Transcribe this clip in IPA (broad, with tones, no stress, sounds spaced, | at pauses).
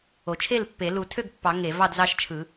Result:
o˨˩˦ t͡ʃʰ e˥˨ l pː e˨˩˦ l u˨˩˦ tʰ ø˥˨ ɡ pː ɑ˨˩˦ ŋ e˨˩˦ v ɑ˥˨ d z ɑ˥˨ ʃ t͡ʃʰ ɯ˨˩˦